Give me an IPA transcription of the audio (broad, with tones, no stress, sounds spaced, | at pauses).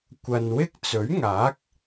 kʷ ɐ˨ n w ɪ˥ k̚ t͡s ɵ˨˥ ɥ ŋ aː˨˥ k̚